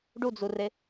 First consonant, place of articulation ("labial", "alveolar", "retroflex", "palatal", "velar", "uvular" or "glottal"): retroflex